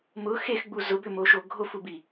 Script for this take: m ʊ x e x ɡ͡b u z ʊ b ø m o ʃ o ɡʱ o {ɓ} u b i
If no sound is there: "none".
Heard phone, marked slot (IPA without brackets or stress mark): f